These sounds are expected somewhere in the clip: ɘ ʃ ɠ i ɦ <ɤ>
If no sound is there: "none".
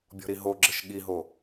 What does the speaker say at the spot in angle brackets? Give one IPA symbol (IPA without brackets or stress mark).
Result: o